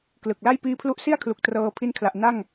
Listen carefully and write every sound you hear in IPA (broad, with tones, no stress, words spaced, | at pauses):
klɯ˨˩k̚la˥˩j piː˦˥pʰlu˦˥ʔsi˥˩a̯kʰlu˨˩k̚ trɤː˧pʰi˦˥n kʰla˨˩ʔna˥˩ŋ